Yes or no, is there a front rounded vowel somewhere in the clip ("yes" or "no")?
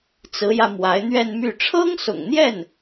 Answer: yes